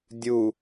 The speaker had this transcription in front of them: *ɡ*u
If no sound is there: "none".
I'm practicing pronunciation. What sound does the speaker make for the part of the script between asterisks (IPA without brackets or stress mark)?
dʲ